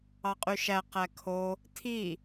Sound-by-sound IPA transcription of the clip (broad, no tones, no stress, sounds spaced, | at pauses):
ɑ qʼ y ʃ æ q æ kʰ o | tʰ i